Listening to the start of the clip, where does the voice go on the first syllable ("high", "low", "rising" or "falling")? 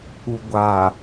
low